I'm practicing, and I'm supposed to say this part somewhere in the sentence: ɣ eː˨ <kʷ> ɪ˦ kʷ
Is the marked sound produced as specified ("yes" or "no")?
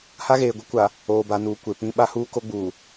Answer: no